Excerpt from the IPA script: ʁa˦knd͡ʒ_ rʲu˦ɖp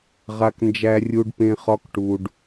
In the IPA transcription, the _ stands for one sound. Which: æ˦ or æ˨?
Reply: æ˦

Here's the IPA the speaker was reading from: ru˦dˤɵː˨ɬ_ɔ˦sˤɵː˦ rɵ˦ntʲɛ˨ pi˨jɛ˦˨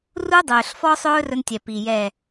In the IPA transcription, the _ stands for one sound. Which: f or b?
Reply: f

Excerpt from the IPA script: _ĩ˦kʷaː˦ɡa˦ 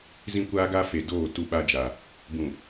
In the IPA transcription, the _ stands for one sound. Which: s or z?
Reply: z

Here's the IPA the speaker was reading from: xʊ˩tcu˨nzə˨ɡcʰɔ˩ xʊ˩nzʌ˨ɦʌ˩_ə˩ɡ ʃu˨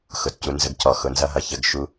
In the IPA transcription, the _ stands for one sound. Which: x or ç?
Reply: ç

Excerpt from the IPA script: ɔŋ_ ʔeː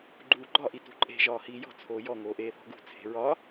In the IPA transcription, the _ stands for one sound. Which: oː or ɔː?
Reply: oː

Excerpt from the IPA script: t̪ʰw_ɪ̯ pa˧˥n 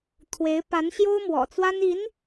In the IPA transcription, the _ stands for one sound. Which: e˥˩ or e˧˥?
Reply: e˧˥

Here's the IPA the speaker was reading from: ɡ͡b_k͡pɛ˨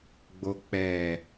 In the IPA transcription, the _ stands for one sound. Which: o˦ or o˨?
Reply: o˨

